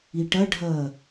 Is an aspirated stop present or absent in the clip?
absent